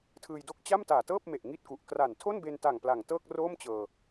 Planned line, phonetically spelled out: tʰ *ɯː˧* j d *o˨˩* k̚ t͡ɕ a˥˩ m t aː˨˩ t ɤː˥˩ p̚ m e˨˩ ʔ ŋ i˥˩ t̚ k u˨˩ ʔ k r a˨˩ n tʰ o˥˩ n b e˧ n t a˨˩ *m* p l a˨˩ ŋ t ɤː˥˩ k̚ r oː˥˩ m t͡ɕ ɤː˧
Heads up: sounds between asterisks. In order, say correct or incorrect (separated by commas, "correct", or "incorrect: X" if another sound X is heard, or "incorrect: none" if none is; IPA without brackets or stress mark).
correct, incorrect: o˥˩, incorrect: ŋ